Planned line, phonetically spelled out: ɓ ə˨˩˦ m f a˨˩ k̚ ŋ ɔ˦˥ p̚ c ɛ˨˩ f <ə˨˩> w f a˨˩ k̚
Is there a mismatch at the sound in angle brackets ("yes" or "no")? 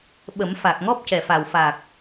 yes